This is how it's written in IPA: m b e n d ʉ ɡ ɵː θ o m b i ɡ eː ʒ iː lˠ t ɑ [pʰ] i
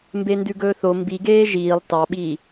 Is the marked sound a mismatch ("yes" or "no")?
yes